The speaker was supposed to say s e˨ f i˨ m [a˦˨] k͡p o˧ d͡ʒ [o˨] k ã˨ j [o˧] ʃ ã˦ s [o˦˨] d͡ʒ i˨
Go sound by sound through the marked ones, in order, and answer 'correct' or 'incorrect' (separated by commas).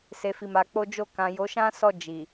incorrect, incorrect, incorrect, incorrect